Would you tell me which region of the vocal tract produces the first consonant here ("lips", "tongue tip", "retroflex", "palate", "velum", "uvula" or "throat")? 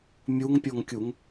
lips